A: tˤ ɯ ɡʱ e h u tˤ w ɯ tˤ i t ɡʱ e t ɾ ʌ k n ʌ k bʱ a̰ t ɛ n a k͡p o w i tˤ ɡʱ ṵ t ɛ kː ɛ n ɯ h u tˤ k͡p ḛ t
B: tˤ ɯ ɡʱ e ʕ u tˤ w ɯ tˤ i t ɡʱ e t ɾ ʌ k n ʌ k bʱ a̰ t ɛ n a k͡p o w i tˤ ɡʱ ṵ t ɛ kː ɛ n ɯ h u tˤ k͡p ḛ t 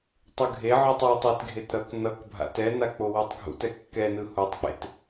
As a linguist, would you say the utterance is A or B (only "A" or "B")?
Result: B